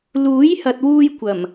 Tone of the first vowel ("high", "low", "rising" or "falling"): rising